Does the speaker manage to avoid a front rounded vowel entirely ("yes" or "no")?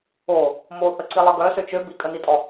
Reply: no